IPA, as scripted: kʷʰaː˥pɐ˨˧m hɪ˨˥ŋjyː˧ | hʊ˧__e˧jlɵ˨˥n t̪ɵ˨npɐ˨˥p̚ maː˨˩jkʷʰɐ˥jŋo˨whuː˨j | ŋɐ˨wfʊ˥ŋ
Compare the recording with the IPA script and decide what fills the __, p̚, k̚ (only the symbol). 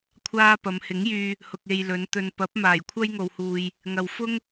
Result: k̚